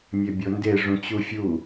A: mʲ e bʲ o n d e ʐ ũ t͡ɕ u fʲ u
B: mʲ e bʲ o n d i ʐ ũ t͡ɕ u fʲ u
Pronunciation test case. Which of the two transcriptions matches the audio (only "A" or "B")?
A